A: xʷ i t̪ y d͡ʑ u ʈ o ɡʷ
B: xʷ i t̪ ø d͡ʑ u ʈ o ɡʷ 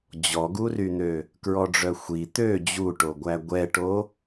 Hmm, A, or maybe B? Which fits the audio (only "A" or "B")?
B